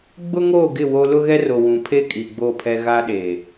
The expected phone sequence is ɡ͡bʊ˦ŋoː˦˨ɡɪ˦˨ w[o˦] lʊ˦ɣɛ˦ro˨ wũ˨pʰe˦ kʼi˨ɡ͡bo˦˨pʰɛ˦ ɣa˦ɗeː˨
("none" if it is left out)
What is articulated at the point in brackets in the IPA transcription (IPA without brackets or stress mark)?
o˦